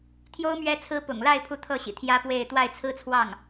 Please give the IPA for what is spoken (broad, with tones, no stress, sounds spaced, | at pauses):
t̪ʰ j o˥ ʊ̯ m ɥ ɛ˧˥ t͡sʰ ɹ̩˧˥ p ʊ̰˨˩ ŋ l a˥˧ ɪ̯ pʰ u˥˧ t̪ʰ ɤ˥˩ ɕ ḭ˨˩ t̪ʰ j ä˥ p w e˥˧ ɪ̯ t̪ w a˥˩ ɪ̯ t͡sʰ ɹ̩˥ t͡sʰ w ɑ˥˩ ŋ